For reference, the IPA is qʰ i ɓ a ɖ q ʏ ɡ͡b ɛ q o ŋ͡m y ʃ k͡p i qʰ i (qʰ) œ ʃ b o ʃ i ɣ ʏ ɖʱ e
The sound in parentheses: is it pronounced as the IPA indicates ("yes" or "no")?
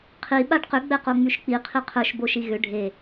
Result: yes